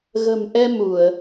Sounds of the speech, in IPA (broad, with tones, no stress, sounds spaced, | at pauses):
ɣ ə̤˨˩ m ʔ ɛ˧ m u˧˩˨ ə̯